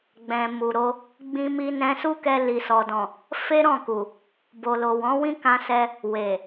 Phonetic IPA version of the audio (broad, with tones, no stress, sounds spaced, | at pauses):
ɡ͡b ɛ̃˨ m u˨ ɾ o˧ | ɡ͡b ĩ˧ m i˧ n ɛ̃˧ s u˦ k ɛ˧ l i˨ s ɔ˨ d ɔ̃˨ | f e˦ ɾ ɔ̃˦˨ k u˨ | b o˨ l o˨ w ɔ̃˨˦ w ĩ˦ k ã˧ s ɛ˧ | w e˨